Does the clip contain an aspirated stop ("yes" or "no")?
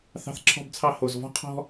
yes